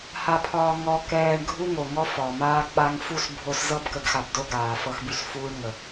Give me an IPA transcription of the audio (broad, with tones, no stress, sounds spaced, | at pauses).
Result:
h a˧ pʰ ɒː˧ ŋ ɔ˧ k ɛː˧ ɳ ɡʱ u˦ ŋ o˨ ŋ ɔ˦ f ɒ˨ m aː˧ k͡p a˧ ŋ f u˦˨ s bʱ o˧ s z ɤ˦ b k ə˧ ɡ x a˧ b d o˦ ɡ aː˨ f ɤ˦ x b y˦ s f uː˦ ɳ ŋ ə˨